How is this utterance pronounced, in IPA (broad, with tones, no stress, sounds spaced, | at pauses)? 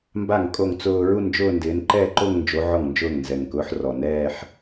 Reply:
m b a˥˩ ŋ kʼ o˥˩ ŋ t͡s ʊː˥˧ ɹ u˥˧ n d͡ʒ ʊː˥˧ n d ɪː˨˦ n ǃ ɛː˥˧ ǃ o˥˧ ŋ n d͡ʒ o˨˦ ʕ ɔ˥˩ ŋ n d͡ʒ ʊː˥˩ ŋ n z ɛ˨˩ ŋ k ʊː˨˦ ħ r ɔ˨˩ n ɛː˥˧ ħ